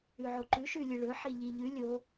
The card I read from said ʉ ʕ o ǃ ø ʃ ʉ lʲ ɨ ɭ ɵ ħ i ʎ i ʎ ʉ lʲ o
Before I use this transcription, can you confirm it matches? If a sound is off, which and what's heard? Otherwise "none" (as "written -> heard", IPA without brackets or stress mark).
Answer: ø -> ʉ